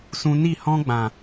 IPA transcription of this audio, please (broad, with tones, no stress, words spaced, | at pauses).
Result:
sũ˧ni˦˨ hɔ̃˦ɡ͡bã˨